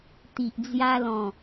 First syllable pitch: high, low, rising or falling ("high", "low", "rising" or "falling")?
low